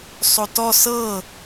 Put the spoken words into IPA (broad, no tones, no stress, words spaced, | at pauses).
sˤotɔ sɤ